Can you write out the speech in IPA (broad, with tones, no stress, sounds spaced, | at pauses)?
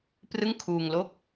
p r ɯ˥˩ ŋ kʰ uː˧ ŋ l o˥˩ k̚